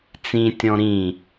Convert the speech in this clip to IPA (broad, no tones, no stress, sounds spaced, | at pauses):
t͡s ĩ tʲ ɔ̃ ɾ ĩ